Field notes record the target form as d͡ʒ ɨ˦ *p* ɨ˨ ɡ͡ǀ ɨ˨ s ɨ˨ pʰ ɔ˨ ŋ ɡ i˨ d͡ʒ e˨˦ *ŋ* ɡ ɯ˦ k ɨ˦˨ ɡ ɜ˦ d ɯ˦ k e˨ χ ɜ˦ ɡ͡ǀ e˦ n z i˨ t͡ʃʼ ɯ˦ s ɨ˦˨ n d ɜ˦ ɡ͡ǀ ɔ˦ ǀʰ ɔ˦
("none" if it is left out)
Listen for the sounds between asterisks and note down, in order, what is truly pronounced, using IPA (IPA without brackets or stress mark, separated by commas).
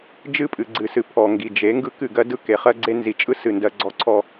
pʼ, ŋ